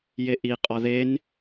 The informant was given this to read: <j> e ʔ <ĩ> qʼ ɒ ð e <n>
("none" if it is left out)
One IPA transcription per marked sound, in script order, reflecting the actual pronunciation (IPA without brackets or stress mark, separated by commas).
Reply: j, i, n